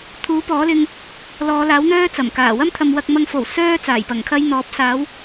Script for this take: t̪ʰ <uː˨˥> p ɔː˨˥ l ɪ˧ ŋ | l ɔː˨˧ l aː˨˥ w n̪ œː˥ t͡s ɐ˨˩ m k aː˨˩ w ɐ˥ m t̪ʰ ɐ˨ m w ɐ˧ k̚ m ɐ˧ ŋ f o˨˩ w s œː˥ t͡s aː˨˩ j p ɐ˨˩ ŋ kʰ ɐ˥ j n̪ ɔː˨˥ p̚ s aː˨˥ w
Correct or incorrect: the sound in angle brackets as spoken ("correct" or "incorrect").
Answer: correct